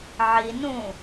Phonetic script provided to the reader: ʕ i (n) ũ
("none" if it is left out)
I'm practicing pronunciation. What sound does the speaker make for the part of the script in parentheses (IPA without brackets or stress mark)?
n